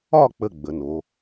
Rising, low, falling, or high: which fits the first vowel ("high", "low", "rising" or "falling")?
falling